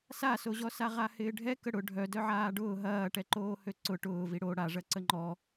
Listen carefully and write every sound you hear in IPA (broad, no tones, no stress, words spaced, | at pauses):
sasoʑɔsa ʁahɪːɖʱɛkə ɽʊ ɖʱœ dœʕaːɖʊː ɦɐːʈɛǃoː høǀʊ ʈʊːvi ɽo ɽaʐɐ ǀəŋ͡ǃɔ